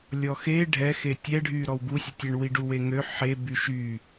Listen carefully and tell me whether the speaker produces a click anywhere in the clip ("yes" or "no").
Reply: no